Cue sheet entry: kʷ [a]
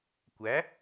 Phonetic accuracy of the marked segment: incorrect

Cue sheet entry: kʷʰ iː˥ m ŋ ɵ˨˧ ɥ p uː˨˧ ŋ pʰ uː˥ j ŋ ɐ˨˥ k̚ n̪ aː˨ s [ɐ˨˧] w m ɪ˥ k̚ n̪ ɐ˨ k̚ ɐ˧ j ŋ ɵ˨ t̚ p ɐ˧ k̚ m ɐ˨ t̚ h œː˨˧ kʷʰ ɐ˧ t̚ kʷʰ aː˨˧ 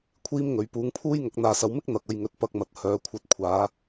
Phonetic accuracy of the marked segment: correct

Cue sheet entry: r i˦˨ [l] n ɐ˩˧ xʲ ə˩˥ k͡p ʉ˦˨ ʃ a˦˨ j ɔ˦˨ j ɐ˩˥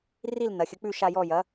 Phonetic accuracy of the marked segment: correct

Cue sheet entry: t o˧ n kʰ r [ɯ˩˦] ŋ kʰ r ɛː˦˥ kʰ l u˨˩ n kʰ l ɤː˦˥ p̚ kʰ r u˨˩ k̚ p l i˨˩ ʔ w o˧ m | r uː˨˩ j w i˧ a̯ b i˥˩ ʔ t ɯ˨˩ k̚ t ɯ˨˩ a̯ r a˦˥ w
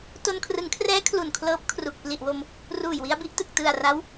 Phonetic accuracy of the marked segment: correct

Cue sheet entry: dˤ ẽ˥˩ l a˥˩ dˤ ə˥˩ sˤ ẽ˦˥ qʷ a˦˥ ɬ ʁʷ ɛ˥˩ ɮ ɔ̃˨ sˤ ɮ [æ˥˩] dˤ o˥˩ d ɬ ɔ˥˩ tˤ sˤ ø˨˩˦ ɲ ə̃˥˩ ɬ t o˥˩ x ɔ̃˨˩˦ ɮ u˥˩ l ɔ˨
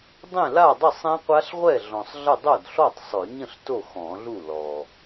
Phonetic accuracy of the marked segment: incorrect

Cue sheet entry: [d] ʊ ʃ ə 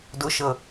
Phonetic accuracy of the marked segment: correct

